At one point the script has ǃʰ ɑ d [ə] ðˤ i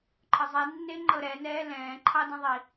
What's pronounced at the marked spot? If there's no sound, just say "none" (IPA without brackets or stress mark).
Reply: ə̃